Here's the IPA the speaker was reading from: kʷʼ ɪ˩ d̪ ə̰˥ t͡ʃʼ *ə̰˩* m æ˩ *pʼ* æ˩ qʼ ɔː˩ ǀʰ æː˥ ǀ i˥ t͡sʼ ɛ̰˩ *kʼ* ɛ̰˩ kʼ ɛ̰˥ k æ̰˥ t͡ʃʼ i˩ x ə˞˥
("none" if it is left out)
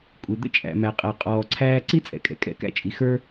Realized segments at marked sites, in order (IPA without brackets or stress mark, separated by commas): æ̰˩, qʼ, kʼ